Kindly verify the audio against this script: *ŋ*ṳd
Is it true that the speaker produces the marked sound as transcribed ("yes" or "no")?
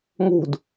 yes